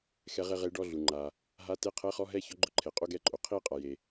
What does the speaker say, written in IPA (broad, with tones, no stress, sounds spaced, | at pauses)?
x ɛ˧˥ ʁ e˥˧ ʁ e˧˥ ɖ ɔ˧˥˧ ɮ u˩ ŋ͡ǃ a˩ | ɦ a˧˥˧ t e˧˥˧ qʰ ɛ˧˥˧ χ ɔ˧˥˧ ɦ ɛ˥˧ ç ɔ˧˥ ɡ͡ǃ ʊ˧˥ ǃʰ e˩ qʼ o˧˥˧ ɡ ɛ˥˧ ǃʼ o˩ qʰ i˥˧ qʼ a˩ j e˩